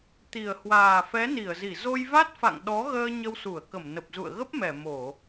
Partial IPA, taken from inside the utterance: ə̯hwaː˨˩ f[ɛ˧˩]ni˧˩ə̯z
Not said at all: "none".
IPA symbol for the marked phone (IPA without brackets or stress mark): ɛ˨˦